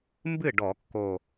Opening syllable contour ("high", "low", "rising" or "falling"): falling